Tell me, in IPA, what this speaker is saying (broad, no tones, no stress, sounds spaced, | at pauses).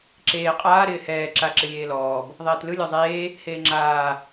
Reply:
ǁ eː qʼ aː ɾ ɪː h ɛː ǁ a ǁ ɪ lʲ eː l ɔː b | ðˤ ɛː t l ɯ lʲ ɔ zˤ eː | h eː ŋ͡ǁ aː